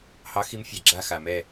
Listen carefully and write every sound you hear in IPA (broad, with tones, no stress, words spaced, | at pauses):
hɑ˨˥xi˨˥mfʲa˨˩ ɡ͡ǁa˦˨xa˨˩ mɛ˦˨